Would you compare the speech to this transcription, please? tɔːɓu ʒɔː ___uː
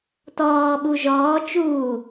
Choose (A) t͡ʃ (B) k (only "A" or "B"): A